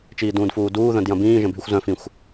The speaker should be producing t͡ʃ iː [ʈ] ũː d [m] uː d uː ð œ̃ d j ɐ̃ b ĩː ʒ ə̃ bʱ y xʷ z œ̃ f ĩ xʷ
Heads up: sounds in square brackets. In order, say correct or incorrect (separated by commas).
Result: incorrect, incorrect